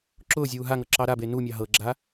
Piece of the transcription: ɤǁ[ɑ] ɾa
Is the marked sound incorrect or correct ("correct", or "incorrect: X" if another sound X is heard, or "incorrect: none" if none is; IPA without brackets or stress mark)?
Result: correct